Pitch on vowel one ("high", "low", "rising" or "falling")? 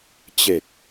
low